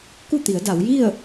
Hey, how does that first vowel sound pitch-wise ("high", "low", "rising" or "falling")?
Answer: falling